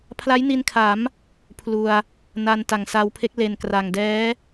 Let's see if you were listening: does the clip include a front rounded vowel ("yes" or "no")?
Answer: no